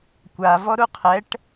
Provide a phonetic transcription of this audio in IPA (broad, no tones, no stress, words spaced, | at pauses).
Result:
kʷa vɔɾuqʰɛʈ